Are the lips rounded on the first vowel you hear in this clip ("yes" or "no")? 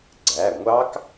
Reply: no